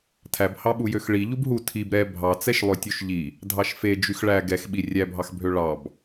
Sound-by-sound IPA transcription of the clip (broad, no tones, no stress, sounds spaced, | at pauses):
tʰ æ b h ɑ ɓ u j ø x ɭ i ʎ u b ɦ u tʰ i b ɾ ɛ bʱ ɑ t͡s ɛ ʃ lˠ ø tʲ u ʃ ʎ i | dʱ ɑ ʃ f e d͡ʒ y x ɭ æ ɡ ɛ x ɓ i rʲ æ bʱ ɑ x bʱ ø ɭ ɑ b